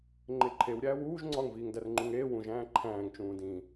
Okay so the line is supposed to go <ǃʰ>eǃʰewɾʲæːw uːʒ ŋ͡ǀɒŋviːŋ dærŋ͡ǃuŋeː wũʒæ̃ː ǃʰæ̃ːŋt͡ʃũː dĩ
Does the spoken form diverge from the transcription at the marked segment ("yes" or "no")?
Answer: yes